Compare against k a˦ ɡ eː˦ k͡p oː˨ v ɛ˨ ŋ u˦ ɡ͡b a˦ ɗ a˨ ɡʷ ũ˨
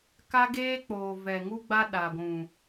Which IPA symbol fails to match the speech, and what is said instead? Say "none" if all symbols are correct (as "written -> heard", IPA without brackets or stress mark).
none